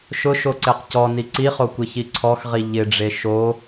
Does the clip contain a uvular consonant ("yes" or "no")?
yes